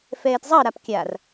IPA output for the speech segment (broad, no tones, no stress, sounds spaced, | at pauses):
f ɛː t zˤ ʌ ɾ a p kʲ a r